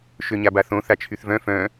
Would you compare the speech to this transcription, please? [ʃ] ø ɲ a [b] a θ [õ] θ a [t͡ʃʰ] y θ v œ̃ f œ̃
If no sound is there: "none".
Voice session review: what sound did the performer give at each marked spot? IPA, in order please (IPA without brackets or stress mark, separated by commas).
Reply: ʃ, b, õ, t͡ʃʰ